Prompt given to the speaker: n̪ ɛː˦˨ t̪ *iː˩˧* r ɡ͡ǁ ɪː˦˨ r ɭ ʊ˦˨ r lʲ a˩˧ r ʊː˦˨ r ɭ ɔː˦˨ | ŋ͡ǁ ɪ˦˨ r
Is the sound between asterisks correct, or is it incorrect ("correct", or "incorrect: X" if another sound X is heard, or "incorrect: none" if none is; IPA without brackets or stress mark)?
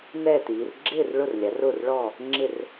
correct